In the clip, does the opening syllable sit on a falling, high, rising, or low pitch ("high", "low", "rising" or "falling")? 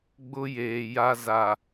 high